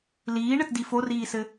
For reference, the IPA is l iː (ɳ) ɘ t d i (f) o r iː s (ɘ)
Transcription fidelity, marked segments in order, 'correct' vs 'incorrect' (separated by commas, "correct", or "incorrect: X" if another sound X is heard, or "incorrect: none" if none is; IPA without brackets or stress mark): correct, correct, correct